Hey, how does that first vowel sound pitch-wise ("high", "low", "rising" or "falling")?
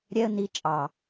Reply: high